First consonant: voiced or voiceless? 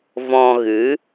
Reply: voiced